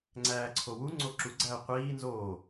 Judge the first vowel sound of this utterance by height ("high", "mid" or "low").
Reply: low